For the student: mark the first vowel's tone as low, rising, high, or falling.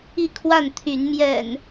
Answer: falling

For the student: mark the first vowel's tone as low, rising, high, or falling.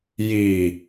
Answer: low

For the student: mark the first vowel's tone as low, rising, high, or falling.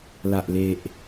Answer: low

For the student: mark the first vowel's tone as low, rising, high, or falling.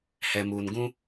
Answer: low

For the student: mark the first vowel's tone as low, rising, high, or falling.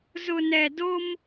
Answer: low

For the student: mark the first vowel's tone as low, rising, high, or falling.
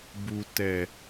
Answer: high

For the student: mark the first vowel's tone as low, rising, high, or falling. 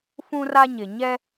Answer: high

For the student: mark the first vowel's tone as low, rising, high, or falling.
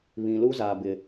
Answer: low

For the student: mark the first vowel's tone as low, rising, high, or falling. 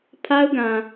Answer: high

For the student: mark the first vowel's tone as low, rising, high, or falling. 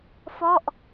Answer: falling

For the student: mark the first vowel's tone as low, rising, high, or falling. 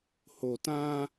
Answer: low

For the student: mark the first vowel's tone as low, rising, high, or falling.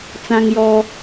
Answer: high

